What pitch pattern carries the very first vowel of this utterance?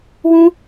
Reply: high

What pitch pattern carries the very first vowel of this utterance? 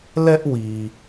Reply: high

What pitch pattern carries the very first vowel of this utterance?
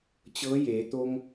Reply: rising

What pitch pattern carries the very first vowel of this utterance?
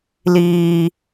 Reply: high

